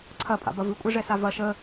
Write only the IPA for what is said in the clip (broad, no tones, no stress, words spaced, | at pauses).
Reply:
ǀʰɐpʼa̰bɐ vɨkʷʼɛʐɛsa vɐ ʃə